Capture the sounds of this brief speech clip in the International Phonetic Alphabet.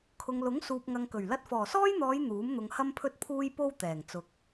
kʰ ʊ˨ ŋ l ʊ˨˥ ŋ s uː˨ p̚ ŋ ɐ˨ ŋ k ɵ˨˩ ɥ l ɐ˧ t̚ f ɔː˨˩ s ɔː˥ j n̪ ɔː˨˧ j n̪ uː˨˥ m n̪ ʊ˨˧ ŋ h ɐ˥ m pʰ ɵ˥ t̚ pʰ uː˥ j p o˥ w t̪ ɛː˨˩ ŋ t͡s ʊ˨ k̚

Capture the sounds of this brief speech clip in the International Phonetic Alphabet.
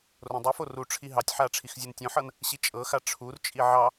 r õ dˤ i f o r u ʈ͡ʂʰ i ɦ ɑ tʲ ħ a ʈ͡ʂʰ i x zʲ u n tʲ õ ħ ɤ n | ɕ i t͡ʃʼ ɤ x a ʈ͡ʂʰ u r t͡ʃʼ i ʕ ɑ

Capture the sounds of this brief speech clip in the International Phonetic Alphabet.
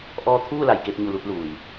ʔ ɔː˧ t̪ʰ uː˥˨ l a˩ j k e˧ p̚ ɲ u˧˩ l u˧ t̚ l uː˩ j

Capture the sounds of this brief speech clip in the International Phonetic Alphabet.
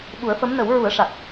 ɓ u˨˩˦ ə̯ f ə˧˥ m n ə˨˩˦ w ɹ u˨˩˦ ə̯ ʂ a˨˩ k̚

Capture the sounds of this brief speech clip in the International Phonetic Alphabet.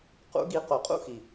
q ṵ˦ ɡ i˧ q o˨ qʼ ṵ˦ x i˨

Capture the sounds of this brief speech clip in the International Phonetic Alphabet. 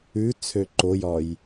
ʉ t͡sʰ ø ǃ o j ɒ j

